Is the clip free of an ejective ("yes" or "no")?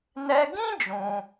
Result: yes